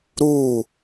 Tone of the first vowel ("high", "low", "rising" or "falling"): falling